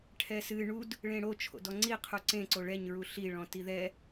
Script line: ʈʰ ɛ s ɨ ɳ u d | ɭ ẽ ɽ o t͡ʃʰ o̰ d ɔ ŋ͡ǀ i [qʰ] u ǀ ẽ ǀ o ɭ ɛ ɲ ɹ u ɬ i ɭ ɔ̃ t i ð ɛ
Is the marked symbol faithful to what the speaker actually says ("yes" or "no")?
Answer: yes